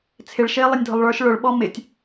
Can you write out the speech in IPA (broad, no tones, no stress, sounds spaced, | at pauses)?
t͡sʰ ɪ ɭ ʃ ɪː lˠ ʌ nʲ dʱ ʊ lˠ ɭ ə˞ ʃ ɭ ʊ ɭ ɓ ɔ m ɪ tʲ